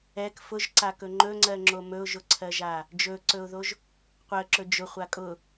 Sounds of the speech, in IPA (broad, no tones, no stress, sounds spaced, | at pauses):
ɛ k f ʊ ʒ ǀ a k ɵ ŋ͡ǃ ɵ ŋ͡ǀ ɜ ŋ͡ǁ o m ɵ ʊ̯ ʒ ʊ ǀʰ ɜ ʒ a | d͡ʒ ɵ ǀ ɵ ʊ̯ ð o ʒ | qʷ ɜ ǁ ɵ d͡ʒ ʊ χʷ a kʼ ʊ